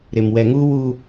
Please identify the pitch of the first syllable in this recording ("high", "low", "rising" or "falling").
low